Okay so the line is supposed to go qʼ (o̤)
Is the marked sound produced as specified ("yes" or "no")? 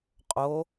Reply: no